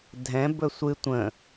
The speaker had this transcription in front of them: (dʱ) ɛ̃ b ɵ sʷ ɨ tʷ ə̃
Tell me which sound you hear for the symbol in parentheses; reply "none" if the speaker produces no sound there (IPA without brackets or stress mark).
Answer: dʱ